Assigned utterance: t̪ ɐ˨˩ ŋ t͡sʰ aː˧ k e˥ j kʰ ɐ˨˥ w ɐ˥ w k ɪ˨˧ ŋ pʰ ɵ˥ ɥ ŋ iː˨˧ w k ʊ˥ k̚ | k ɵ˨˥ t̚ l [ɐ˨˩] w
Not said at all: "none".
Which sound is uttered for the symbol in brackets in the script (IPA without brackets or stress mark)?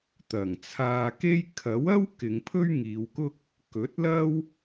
ɐ˥